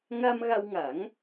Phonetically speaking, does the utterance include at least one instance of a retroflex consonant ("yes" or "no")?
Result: no